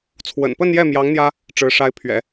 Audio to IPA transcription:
t͡sʰwə̰˨˩npə˥˧njɛ˥˩mjɑ˧˥ŋ n̪jä˥ | ʈ͡ʂɻ̩˧˥ ʂa˧˥ɪ̯pʰɥɛ̰˨˩˦

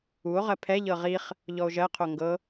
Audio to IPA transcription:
uo̯ʁɜ pʰɛʎɤ ʁiχ | ʎɔo̯ʒɜqʰo ŋɡɤ

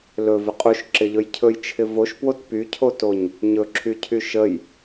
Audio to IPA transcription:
lɵvɪ qʼuʃǁɪʎɵj cʰɵjt͡ʃʰɪ voʃpwot pycʰotoɲ | ɲɵǁʰycʰy ʃəj

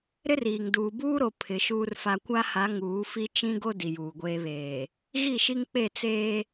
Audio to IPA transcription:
ɾɪ˦riː˨ŋ duː˨buː˦ɾo˨ pʰɪ˨˦ʃuː˦rfa˦ kʷa˦ha˨˦ ŋuː˨˦fi˦ t͡ʃĩ˦ ɡo˦ di˨juː˨ɡʷeː˦βeː˨ | ɣi˦˨ʃi˦ŋk͡pe˦˨ t͡seː˦

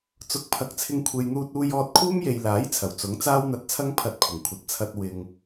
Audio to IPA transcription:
t͡sʊ˨˥k̚pʰɐ˨k̚t͡sʰɪ˧ŋ kʷʰe˨jn̪uː˧t̚uː˧jɔː˧t̚ kʰuː˥mje˨jlaː˨˥j t͡sʰɐ˨˩wt͡sʊ˨˥ŋ t͡saː˥wn̪ɐ˧t̚t͡sʰɐ˥ŋ pʰɐ˧t̚pʰɪ˨˩ŋkʷʰɐ˨t̚ t͡sʰɐ˧t̚ wɪ˨ŋ

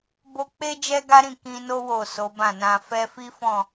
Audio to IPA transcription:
bo˧k͡pe˦ d͡ʒɛ˦ɡa˦ɾĩ˦˨ kĩ˧no˦ wo˦˨so˨˦bã˦˨nã˧ fɛ˧fi˦fɔ̃˦˨

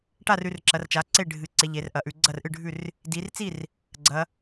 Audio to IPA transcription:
ʈa˥˩rʉ˩˧rǁɐ˩˧rt͡ʃa˩˧ ǀe˥˩ɖʱɨ˩˧ǀe˩˧ ʎe˩˧rʔɐ˩˧ʔʉ˩˧ ɡ͡ǀɐ˥˩rʔɨ˥˩ɖʱʉ˥˩r | di˩˧rt͡si˥˩r | ɡ͡ǀɐ˩˧

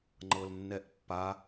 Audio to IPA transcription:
ŋ͡ǃɤlnːɛʔpːa

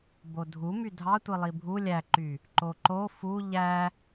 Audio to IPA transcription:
bodʱu mydʱɑtʷi lˠibʱu lʲæǃy | ǃoǃo fu ʎæ

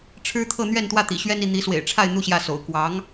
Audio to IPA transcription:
ʈ͡ʂʰɻ̩˥t̪ʰɤ˥˧ n̪ɥɛ˥˧nt̪wä˥˩ t̪ḭ˨˩ɕɥɛ˥n i˥˩n̪i˧˥swḛ˨˩ɪ̯ʈ͡ʂʰa˥˧ɪ̯ n̪u˥˧ɕjä˥˩so̰˨˩ʊ̯ kwɑ˧˥ŋ

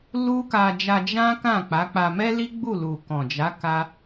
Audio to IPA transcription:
lu˦ ka˧d͡ʒa˧ d͡ʒã˦ kã˦˨k͡pa˨˦k͡pa˧ mɛ˦li˦ ɡ͡bu˦˨lu˨kɔ̃˨d͡ʒa˨˦ ka˦

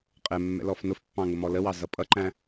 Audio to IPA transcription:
qʼɛ mːɛ̰lɔfnʊfpːɑ̃ ŋʊmɔləwɑ zʌpʼʌǃæ̃

